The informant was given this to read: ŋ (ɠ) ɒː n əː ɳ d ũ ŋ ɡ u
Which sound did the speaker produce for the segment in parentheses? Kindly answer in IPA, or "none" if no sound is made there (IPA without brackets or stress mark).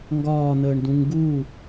ɡ